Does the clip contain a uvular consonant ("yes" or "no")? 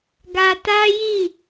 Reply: no